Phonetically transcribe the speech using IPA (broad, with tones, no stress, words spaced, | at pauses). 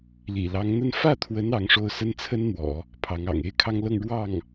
lḭ˨˩lɑ˧˥ŋn̪ə˥˧n fä˥˩t̪ʰwə˧˥n ɑ˧˥ŋʂo˥˩ʊ̯ sə˥nt͡sʰə˥nn̪wɔ̰˨˩˦ | pʰɑ˧˥ŋɑ̰˨˩ŋ e˥ɪ̯kʰɑ˥ŋlɤ˥˧ŋ ɻwɑ˥˩ŋ